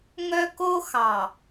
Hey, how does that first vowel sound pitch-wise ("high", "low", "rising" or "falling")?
high